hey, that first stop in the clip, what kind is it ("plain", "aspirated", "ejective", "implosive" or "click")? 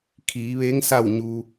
aspirated